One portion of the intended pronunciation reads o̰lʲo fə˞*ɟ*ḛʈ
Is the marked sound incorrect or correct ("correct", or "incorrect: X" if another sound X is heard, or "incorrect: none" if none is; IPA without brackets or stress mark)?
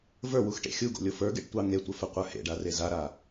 incorrect: ɡ